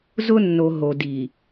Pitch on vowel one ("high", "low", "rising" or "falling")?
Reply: high